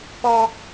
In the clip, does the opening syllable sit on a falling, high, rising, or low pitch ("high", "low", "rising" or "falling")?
high